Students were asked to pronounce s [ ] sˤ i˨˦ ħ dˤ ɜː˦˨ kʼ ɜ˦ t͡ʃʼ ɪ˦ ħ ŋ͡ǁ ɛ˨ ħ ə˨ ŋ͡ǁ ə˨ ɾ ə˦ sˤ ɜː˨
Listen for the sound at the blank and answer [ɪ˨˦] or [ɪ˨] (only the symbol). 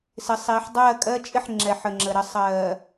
ɪ˨˦